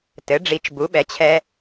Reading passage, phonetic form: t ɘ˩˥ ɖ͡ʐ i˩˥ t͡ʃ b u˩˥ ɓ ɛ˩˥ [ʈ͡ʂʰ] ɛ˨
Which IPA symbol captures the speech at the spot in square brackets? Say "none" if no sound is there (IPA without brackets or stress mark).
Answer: t͡ɕʰ